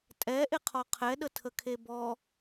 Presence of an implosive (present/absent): present